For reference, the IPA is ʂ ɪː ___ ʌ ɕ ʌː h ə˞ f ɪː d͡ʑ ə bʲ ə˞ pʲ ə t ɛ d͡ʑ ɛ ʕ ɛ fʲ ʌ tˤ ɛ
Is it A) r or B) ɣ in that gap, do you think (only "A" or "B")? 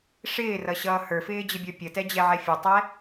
A